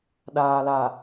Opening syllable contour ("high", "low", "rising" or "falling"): low